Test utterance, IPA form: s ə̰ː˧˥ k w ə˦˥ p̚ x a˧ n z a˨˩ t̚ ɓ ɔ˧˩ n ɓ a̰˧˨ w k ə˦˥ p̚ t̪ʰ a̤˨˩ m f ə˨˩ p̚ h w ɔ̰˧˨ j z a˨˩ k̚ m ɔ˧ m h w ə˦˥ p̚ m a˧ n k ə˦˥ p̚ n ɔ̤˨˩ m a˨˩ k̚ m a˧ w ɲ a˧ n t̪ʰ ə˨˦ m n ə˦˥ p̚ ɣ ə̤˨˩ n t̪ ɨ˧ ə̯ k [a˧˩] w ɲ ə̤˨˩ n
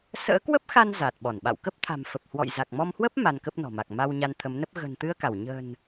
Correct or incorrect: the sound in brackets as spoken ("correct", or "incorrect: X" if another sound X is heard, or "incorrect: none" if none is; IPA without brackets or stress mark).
correct